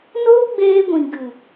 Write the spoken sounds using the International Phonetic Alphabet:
n oː˦ ɡ͡b eː˧ ɡʷ ĩ˨ ɡ ɨ˨

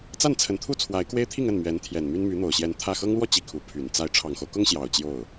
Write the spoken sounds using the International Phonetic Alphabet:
t͡s a˥˩ n t͡sʰ ə˧˥ n t̪ʰ u˥ t͡sʰ w a˧˥ ɪ̯ k w e˥ ɪ̯ t̪ʰ i˥˧ ŋ ə˥˩ n m ɥ ɛ˧˥ n t̪ʰ j ɛ˨˩ n m y˥ n m y˧˥ n̪ o˨˩ ʊ̯ ɕ j ɛ˧˥ n t̪ʰ ä˥˩ x ɤ˥ ŋ l w ɔ˥˧ t͡ɕ i˥˩ kʰ u˧˥ pʰ y˨˩ n t͡s a˥˩ ɪ̯ ʈ͡ʂʰ ɑ˨˩ ŋ x o˦ ʊ̯ k ʊ˥ ŋ ɕ j ɑ˨˩ ʊ̯ t͡ɕ j o˥˩ ʊ̯

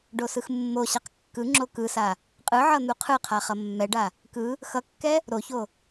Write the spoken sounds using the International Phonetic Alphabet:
ɖ o s ɯ x mː o ɕ a q kː ɯ ŋ͡ǁ o k ɯ s a | qʼ ɯ ʕ ʌ n̪ u qʰ ɯ qʰ a χ ʌ mː ɛ ɖ a | k ɯ | x ʌ kː ɛ | ɾ o ç o

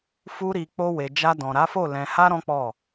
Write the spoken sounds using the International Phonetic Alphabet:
f u˧ ɾ i˨ k͡p o˧ w e˨ d͡ʒ a˧ d ɔ̃˨ ɾ a˨˦ f o˦˨ l ɛ̃˨ h a˧ ɾ ɔ̃˦ k͡p ɔ˦˨

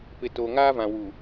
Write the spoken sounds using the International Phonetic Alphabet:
p ɪ˨ t o˨ ŋ aː˦ v ã˨ w u˨

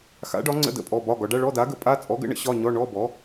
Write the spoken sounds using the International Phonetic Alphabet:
x a̰˨˥ ɖ ɒ˨˥ ŋ͡ǀ ə̰˧˥˧ d ə̰˧˥˧ pʼ ɔ˧˥˧ b ɒ˧˥˧ ɡ ɒ˨˥ ɖ a˧˥˧ ɭ ɔ˧˥˧ d a˨˥ ɡ ə˨˥ pʼ a˧˥˧ t͡sʼ ɔ˨˥ ɡ ə̰˨˥ ɳ ə̰˨˥ ɕ ɒ˧˥˧ ɲ ɔ˧˥˧ ɳ ɔ˧˥˧ b ɔ˨˥

